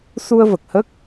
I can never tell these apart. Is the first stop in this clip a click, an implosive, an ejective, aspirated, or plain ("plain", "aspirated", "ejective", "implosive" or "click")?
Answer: plain